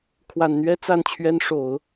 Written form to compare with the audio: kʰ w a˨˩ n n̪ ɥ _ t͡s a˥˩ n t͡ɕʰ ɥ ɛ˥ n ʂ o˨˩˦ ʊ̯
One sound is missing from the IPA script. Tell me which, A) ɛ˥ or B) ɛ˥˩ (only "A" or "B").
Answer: A